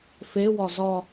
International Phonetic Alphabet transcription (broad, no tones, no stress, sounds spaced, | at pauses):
f e w ɒ z ɒ